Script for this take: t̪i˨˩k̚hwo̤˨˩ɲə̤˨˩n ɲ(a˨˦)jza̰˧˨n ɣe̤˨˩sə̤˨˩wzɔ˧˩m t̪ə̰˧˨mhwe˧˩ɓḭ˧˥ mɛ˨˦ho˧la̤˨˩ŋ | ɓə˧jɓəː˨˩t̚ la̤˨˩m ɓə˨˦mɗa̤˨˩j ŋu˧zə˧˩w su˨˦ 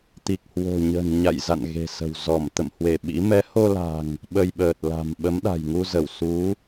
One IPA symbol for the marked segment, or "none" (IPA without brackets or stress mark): a̰˧˨